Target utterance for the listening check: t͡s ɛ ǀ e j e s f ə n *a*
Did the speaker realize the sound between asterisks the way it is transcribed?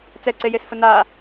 yes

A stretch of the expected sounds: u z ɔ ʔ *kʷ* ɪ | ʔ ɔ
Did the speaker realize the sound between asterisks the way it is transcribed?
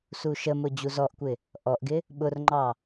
yes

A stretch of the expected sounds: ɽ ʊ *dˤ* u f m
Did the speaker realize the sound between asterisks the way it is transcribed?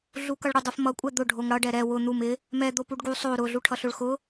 yes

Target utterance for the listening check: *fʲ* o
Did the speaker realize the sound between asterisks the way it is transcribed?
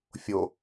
yes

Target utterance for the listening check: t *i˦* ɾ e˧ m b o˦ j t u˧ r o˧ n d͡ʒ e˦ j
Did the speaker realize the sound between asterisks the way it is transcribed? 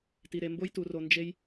no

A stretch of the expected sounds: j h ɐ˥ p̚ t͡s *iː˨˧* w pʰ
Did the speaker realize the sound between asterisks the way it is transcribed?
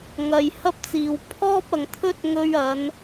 no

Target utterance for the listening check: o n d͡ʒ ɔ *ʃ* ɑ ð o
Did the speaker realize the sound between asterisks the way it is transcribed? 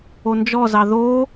no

